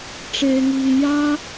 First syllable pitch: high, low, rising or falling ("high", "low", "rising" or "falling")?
high